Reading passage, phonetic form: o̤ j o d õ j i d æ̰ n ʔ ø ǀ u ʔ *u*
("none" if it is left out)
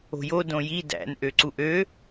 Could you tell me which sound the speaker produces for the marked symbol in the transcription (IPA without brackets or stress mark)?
ø